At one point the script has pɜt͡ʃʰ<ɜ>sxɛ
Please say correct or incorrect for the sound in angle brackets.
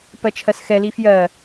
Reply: correct